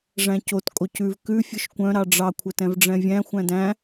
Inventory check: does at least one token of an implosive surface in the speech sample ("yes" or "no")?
no